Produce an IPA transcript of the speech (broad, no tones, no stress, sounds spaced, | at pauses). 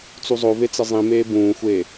t͡s u zˤ o v e t͡s ɪ zˤ ĩ m eː b ũː xʷ eː